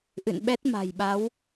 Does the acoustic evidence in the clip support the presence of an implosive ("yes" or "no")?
yes